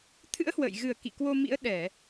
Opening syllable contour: rising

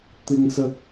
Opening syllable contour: high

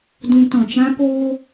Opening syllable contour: high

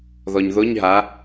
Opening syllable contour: low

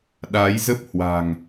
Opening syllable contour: rising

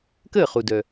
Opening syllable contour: falling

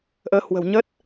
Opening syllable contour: rising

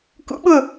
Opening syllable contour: rising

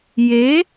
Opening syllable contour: rising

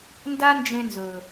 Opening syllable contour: high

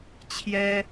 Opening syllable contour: high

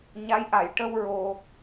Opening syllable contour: rising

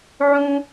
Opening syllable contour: high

